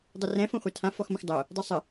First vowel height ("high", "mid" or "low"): mid